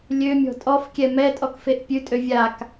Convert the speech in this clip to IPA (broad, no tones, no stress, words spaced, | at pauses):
lʲømʲɔ̤ tʼɔfkʲɛ mɛtʼɔkfeʔ pʲʉtʼø vʲak